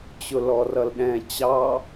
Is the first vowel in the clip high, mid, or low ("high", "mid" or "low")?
high